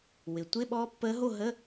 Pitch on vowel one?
low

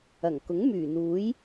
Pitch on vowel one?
low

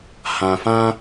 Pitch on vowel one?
low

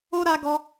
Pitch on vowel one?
high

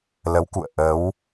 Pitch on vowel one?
rising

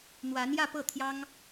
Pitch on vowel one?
rising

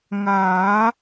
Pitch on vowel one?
rising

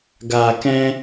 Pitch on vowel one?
low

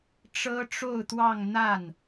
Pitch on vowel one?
high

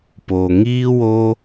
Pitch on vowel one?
low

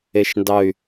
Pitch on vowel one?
low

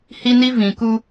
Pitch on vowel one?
high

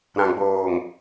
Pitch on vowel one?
low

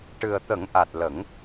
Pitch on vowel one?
low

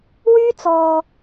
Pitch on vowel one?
high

